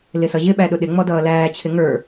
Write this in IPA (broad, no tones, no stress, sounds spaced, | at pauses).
l ɪ s ʌ ʑ ɪ ɓ æ ɗ ʊ ɗ ɪ ŋ͡m ɔ d ʌː l æː t͡ɕʰ ɪ ŋ ə˞